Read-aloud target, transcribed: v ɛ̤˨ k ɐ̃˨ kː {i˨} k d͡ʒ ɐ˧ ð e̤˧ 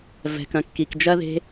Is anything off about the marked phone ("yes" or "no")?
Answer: no